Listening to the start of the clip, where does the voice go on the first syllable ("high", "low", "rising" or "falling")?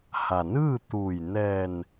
low